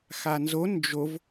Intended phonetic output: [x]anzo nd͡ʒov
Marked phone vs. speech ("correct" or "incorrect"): correct